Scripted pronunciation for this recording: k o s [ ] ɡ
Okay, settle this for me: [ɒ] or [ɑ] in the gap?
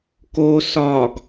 ɒ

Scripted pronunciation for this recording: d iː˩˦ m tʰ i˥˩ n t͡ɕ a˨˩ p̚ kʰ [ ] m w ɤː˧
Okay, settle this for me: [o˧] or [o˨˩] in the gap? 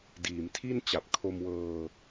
o˧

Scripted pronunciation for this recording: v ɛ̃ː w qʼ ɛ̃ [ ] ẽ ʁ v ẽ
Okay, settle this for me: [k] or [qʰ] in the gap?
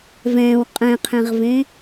qʰ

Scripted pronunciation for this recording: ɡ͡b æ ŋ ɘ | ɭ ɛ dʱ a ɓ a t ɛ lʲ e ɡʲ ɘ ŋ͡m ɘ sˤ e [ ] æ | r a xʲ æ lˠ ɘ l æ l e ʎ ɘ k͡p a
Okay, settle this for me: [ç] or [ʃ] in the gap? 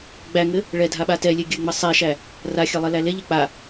ʃ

